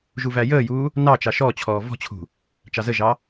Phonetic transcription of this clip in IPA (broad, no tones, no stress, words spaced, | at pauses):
ʒuvæjəːjuː | nɑt͡ʃɑ ʃɔt͡ɕʰɔː vɔ̤t͡ɕʰṳ | t͡ʃɑzəʒɑ